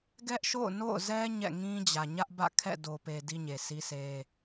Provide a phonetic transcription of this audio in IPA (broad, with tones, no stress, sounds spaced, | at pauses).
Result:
ɡ ɛ˦ ʔ ʃ o̰˦˨ ʊ̯ n o̰˦˨ ʊ̯ z ɛ˦ ɲ ɛ̰˦˨ ŋ ĩ˦ d͡ʑ ä˨ ɲ ä˦ ʔ b ä̰˦˨ kʰ ɛ̰˦˨ d o˨ p e˨ d i˦ ɲ e˨ sʰ i˦ sʰ e˦